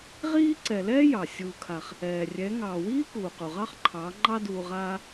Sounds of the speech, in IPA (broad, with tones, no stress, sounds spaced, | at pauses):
ʁ iː˦ ǀ ɛ˨ l ɛː˦ j ɑ˨ sʲ uː˧ kʰ a˧ χ | ɛː˨ rʲ ɛ˨˦ ŋ ɑː˨ w iː˦ k uː˨ q u˨ ʁ ɑ˦ χ ǃʰ ɑː˨˦ ŋ͡ǃ ɑ˦ d uː˧ ʁ aː˦